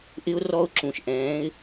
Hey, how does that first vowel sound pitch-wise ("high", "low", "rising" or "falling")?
high